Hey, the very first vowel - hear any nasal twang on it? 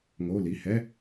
no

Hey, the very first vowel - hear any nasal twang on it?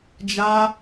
no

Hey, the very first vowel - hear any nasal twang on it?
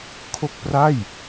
no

